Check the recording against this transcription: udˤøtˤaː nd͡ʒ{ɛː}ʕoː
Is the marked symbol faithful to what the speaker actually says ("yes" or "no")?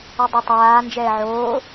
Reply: yes